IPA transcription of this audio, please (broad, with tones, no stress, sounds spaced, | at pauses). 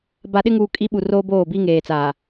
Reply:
b a˨ ɗ ɪ˦ ŋ uː˨ kʼ i˦ ɓ u˨ r oː˦ b oː˦˨ b i˦ ŋ eː˨ t͡s aː˨